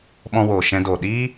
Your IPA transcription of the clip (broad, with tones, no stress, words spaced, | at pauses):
ɓɔ̃˧woː˨ ʃɛ̃˧doː˨ ɗiː˦